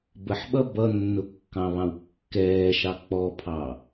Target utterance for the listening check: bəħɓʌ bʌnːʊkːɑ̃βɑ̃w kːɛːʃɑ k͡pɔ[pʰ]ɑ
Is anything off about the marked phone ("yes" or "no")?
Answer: no